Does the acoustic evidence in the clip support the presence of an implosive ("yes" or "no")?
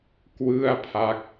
no